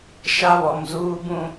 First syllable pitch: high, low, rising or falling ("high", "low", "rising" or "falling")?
high